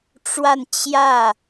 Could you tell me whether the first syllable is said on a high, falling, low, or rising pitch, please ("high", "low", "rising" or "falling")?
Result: falling